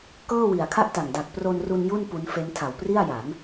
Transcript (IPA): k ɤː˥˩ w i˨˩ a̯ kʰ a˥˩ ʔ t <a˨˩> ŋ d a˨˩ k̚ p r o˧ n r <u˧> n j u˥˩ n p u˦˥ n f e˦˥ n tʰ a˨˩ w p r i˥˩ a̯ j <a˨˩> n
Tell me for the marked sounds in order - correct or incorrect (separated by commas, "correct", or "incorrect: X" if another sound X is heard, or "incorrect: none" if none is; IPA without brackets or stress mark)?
correct, correct, incorrect: a˩˦